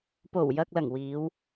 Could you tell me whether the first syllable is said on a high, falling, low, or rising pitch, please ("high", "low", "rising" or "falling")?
low